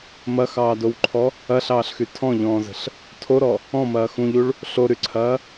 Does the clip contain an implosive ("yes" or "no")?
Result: no